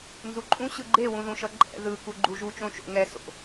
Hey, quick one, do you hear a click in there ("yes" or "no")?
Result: yes